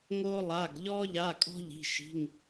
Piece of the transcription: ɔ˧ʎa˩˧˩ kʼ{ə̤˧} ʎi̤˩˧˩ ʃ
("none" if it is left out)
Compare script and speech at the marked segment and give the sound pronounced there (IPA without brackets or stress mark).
ɔ̤˧